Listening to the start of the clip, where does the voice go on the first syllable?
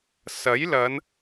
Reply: rising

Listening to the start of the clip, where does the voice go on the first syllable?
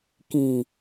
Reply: low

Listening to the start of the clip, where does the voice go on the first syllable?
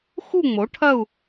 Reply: falling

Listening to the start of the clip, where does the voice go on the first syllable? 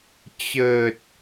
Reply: low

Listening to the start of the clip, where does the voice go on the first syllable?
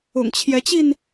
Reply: low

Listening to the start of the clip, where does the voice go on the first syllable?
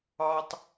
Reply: high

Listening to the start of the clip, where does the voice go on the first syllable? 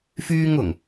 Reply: high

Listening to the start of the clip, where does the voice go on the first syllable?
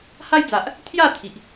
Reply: high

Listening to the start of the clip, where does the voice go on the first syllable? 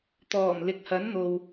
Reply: low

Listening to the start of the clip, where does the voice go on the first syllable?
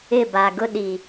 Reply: falling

